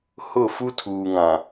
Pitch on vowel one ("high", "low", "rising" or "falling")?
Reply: falling